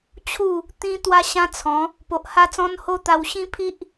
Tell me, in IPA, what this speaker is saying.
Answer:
t͡ɕʰ u˥˧ | t̪ ĩ˦ t̪ w a˦ ɕ ã˦ t͡sʰ ɔ̃˨˦ | p o˨ ʔ h a˦ t͡s ɔ̃˦ n h o˦ t̪ a˧ w ɕ ĩ˦ pʰ i˦ ʔ

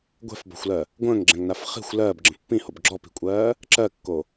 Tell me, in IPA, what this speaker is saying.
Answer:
ɡʷ ɛ̤ f b ɔ̤ xʷ l ɜ | ɡʷ ə̃ː ŋ ɡ͡ǁ ɛ̃ ŋ n a f χ i̤ xʷ l ɜː b ɡ͡ǁ ə̃ pː ĩ h o b ɡ͡ǁ ɔ p i̤ kʷʼ ɜː | ǁ ɜ kː o

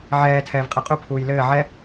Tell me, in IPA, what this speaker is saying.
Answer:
ʕ ɛː tʰ ɛː v qʼ ɛ qʼ u pʰ uː j l ɘː ʕ ɛ

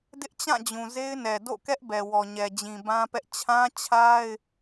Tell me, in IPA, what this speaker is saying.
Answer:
d ɪ˦ ʔ t͡ɕ ã˦˨ d͡ʑ ũ˨ z e˦ ɪ̯ n ɛ˨ d o̰˦˨ k ɛ˦ ʔ b ɛ˨ w ɔ˨ ɲ ɛ˨ d͡ʑ ĩ˨ b ã˦ p ɛ˦ ʔ t͡ɕʰ ã˦ t͡ɕʰ a˦ ɪ̯

